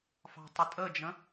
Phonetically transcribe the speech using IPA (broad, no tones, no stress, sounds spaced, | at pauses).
f ɑ̤ tˤ ʊ tʼ ə d͡ʒ ə̃